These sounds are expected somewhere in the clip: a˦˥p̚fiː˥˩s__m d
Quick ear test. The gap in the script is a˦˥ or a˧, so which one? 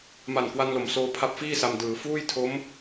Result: a˧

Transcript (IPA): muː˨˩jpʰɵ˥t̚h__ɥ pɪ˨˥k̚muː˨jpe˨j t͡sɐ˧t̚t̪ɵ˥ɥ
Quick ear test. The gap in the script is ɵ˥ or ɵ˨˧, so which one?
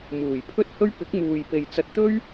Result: ɵ˥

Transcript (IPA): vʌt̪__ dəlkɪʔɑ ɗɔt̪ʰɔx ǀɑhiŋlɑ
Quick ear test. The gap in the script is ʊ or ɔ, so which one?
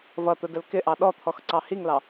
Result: ʊ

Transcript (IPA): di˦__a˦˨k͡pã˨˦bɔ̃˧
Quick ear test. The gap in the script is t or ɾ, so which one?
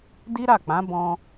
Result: ɾ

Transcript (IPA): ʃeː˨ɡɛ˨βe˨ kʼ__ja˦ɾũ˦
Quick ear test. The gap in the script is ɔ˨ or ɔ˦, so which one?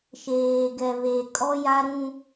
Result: ɔ˦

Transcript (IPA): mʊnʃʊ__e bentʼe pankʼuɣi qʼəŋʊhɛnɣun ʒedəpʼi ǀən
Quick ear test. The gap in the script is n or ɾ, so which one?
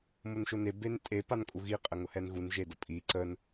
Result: n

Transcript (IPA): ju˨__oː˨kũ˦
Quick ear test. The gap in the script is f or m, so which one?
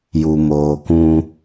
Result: m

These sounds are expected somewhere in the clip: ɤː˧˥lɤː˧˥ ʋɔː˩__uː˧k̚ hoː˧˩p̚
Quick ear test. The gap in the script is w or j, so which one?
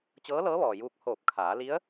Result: j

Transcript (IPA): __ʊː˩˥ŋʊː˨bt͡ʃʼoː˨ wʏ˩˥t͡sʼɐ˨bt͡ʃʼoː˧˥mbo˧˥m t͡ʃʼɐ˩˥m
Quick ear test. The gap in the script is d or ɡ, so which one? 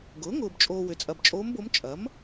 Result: ɡ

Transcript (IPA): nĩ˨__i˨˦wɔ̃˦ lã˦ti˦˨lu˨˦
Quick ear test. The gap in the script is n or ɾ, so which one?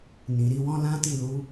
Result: ɾ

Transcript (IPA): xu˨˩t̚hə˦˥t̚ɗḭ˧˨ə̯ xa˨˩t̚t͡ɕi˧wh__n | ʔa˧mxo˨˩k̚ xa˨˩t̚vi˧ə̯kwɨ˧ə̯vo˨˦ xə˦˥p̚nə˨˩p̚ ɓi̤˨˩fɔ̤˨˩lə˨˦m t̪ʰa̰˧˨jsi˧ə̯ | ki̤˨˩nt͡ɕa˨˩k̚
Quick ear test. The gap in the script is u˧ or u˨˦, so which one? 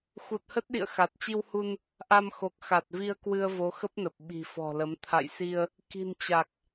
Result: u˧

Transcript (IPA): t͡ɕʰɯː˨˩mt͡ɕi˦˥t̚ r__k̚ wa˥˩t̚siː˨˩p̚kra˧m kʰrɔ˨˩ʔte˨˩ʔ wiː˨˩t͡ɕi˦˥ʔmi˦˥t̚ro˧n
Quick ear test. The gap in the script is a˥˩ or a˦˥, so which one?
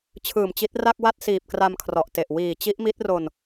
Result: a˥˩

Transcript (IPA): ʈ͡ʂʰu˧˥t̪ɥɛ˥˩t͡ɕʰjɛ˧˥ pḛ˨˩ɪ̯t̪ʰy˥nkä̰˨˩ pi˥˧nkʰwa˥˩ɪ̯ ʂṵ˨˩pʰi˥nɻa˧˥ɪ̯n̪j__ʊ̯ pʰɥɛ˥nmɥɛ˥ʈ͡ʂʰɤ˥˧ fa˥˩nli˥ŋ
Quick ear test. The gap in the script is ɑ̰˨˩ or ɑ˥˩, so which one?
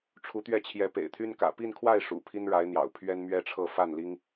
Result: ɑ̰˨˩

